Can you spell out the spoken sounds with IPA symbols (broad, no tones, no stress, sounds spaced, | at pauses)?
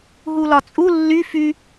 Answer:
ɦ u l ɒ t͡sʼ u lː y f y